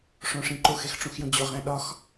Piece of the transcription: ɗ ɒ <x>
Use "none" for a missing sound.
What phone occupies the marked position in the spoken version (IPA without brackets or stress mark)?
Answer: x